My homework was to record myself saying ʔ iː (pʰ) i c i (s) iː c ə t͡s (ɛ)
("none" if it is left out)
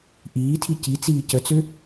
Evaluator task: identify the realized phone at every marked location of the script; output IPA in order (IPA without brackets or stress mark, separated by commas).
tʰ, t͡s, ø